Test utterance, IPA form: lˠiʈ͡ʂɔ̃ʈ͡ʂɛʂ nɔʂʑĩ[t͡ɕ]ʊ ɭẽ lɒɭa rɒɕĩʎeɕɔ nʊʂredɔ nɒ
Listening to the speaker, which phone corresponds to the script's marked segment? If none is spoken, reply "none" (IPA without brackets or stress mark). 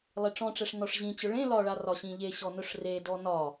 t͡ɕ